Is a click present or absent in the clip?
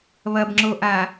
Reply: present